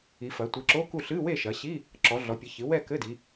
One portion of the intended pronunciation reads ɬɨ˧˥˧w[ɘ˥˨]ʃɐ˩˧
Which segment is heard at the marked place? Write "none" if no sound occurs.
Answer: e˥˨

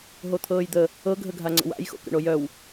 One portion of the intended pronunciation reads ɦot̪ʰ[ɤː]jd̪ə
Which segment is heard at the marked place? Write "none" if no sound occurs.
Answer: ɤː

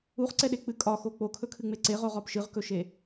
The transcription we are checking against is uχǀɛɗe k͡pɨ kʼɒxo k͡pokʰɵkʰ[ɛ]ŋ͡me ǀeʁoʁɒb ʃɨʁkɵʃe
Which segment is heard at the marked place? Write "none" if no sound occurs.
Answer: ɨ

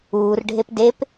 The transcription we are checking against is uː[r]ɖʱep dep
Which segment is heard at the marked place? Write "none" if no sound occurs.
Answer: r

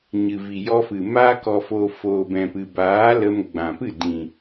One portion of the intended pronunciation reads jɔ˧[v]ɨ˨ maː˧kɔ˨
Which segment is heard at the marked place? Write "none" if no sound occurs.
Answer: f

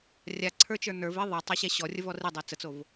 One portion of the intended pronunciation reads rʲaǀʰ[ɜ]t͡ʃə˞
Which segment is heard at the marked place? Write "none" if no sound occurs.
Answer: ə˞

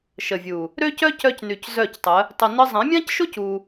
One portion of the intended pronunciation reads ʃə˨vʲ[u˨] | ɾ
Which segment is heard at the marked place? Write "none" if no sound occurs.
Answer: u˨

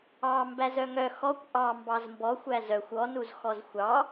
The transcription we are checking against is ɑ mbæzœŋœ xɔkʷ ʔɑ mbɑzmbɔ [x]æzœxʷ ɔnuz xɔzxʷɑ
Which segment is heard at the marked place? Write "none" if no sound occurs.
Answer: xʷ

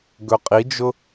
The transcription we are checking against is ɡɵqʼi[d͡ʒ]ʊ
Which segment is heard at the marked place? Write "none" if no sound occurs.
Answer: d͡ʒ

